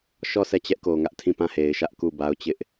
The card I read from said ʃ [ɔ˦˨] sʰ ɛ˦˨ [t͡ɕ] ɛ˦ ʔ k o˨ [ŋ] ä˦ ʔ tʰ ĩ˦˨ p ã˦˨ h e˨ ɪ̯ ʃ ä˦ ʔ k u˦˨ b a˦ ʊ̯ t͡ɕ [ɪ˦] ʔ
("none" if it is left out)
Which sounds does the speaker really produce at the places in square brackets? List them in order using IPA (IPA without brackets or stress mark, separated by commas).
ɔ˦˨, t͡ɕ, ŋ, ɪ˦